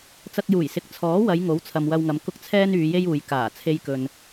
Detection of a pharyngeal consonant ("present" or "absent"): absent